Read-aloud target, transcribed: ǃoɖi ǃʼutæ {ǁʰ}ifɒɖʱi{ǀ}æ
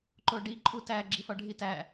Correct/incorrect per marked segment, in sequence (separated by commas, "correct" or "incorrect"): incorrect, incorrect